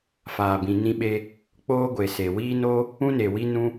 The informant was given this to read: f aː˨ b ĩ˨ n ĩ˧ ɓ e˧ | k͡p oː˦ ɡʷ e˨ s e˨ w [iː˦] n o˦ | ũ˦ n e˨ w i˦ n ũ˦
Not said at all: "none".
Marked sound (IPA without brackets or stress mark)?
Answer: iː˦